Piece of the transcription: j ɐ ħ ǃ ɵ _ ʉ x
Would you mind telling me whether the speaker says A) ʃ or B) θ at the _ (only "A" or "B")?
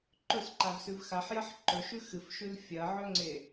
A